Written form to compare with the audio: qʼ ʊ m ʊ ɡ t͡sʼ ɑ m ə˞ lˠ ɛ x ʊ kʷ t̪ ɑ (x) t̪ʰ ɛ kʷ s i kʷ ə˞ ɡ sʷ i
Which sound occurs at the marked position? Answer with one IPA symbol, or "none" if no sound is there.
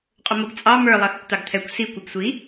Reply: ɡ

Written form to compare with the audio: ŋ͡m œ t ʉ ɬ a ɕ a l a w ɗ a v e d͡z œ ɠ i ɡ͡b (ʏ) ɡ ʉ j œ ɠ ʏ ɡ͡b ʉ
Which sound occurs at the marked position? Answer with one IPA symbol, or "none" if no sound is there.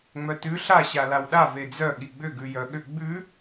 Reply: ʏ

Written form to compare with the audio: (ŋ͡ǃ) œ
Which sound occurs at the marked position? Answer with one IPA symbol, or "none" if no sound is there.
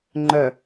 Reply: ŋ͡ǃ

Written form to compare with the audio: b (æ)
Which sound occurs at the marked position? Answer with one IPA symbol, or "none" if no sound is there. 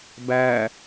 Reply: æ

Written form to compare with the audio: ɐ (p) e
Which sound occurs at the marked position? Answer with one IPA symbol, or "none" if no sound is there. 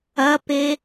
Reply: p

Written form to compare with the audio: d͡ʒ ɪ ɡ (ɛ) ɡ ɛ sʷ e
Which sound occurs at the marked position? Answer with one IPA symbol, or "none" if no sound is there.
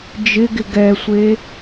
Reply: ɪ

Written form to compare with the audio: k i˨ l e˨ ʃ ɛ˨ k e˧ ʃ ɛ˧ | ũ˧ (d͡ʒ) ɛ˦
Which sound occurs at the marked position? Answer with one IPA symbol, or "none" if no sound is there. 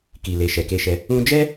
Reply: d͡ʒ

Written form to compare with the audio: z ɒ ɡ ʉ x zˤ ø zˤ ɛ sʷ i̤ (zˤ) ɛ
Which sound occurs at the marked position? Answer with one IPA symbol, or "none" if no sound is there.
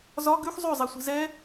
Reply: z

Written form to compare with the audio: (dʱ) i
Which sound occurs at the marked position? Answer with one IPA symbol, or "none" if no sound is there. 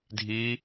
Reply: dʱ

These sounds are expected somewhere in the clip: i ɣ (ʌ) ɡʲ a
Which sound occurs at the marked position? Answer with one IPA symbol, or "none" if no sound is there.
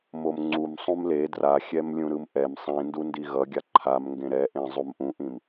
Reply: ʌ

